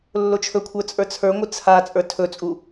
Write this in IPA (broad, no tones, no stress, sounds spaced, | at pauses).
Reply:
lː o t͡ʃʰ ɵ kʷʰ ə˞ t͡sʼ ə˞ t͡sʰ ə˞ ŋʷ ɨ t͡sʰ a t͡sʼ ə˞ tʰ ɵ t͡sʼ u